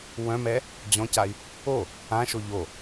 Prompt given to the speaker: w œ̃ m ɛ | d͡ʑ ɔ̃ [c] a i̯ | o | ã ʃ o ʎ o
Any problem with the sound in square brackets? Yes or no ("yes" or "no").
no